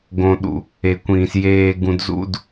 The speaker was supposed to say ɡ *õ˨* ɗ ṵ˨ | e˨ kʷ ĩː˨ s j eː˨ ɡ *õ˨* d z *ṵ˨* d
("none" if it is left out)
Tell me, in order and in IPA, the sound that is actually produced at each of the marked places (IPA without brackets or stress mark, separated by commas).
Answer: õ˨, ũ˨, ṵ˦